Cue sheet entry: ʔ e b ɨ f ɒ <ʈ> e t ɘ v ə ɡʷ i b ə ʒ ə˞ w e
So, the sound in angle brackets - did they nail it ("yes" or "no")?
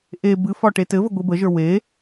yes